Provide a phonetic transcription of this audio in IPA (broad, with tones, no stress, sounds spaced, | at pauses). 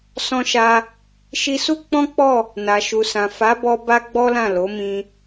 s ɔ̃˧ ʃ a˧ | ʃ i˧ s u˦ k͡p ɔ̃˦ k͡p ɔ˦˨ | n a˨ ʃ u˨ s ã˨ f a˨˦ b ɔ˧ b a˦ ɡ͡b ɔ˦ l ã˦˨ l o˨˦ m ĩ˧